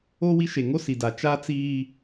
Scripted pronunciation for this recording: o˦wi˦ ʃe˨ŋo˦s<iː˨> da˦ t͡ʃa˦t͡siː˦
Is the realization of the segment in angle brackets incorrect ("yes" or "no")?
yes